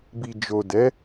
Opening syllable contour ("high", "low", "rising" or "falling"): low